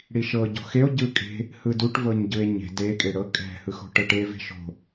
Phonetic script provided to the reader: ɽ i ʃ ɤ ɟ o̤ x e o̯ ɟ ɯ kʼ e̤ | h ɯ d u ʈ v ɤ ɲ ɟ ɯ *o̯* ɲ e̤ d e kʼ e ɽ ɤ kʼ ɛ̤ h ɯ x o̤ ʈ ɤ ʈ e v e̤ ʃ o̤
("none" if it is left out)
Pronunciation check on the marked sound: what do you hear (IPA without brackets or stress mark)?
e̯